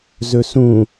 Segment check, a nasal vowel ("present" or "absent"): present